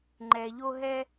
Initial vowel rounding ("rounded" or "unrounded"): unrounded